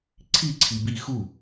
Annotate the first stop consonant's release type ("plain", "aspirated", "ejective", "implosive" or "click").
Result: click